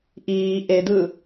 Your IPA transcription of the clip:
ʔiː ʔedɯ

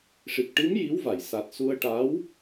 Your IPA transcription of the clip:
ʂi˨˩k̚ʈi˧˥m ji˧˥wva˨˩˨jsa˨˩t̚ su˧ə̯ ʈa˧˥w

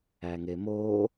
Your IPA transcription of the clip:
æŋemoː

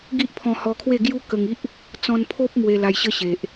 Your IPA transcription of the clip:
ɡi˦ʔpʰɔ̃˧hɔ˧kʰwe˥˧ ɡju˦kə˧ŋi˦ʔ | t͡sɔ̃˧npʰo˦p̚ mwe˧la˧jɕə˦ɕe˨ʔ

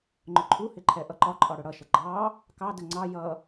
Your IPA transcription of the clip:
ŋ͡ǃʊǃʰuhɪ ǃʰɛʔʌǃɒǃʼɒ ɽʊɽʌʃə ɡ͡ǃɑ | kɑdə ŋ͡ǀɑ jʌ

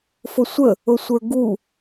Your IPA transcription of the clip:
fʊsʷə | ʊsʷə˞ɡu

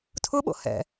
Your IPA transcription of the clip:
tʰʊɓo̰hɛ̰

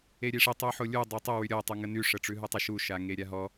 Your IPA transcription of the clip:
eɾʲeʂe tˤʉħolʲu dˤotˤə wyɾʲɔ tˤuŋəny ʂəʈ͡ʂʉɦʉtˤə ʃu ʃaŋeɾʲaɦɔ

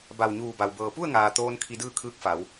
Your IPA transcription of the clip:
ba˧˩wɲuː˧˩ba˩w bɤː˩pu˥˨ə̯ŋaː˩ t̪oː˧n kʰi˧dɯː˥˨kʰɯː˧˥k̚fa˩˧w

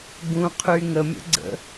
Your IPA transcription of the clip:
ɡũqʰy ŋəmʲə̰ɡ͡ǀə̰

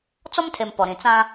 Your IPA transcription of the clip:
t͡sɔ˦mtʰe˨m pɔ˨ɾĩ˨ t͡sã˦

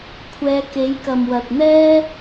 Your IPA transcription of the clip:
kʷʰɛː˨˧ke˨˥j kɐ˨mwɐ˨t̚n̪ɛː˥

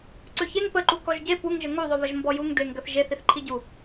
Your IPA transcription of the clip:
ǀøçeŋ pəǃu kɔʒɟe puŋʒə ŋuðˤøβəʒ mbɔjuŋ deŋɡəθʒe θiθǃʰiɟu

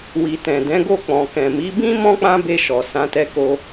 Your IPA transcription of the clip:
wi˨tɛ̃˨ dɛ̃˨˦ɡo˦˨ k͡pɔ̃˨kɛ̃˨mi˨˦bĩ˦ mɔ̃˦k͡pã˦be˧ ʃɔ˨sã˨˦tɛ˧ko˧

